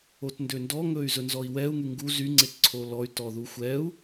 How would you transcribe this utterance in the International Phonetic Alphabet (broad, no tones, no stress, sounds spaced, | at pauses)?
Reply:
o t n d ø n d ɔ ŋ ɵ y̯ z ɵ n z ɔ i̯ w ɛ u̯ ŋ y ŋ ɡ u z y ŋ͡ǀ e t ǀʰ o l ɔ y̯ t ɔ ð u xʷ ɛ u̯